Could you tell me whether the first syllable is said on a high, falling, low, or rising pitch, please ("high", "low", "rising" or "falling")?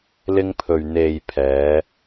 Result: high